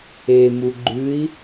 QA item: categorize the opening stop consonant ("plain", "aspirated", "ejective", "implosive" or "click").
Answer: click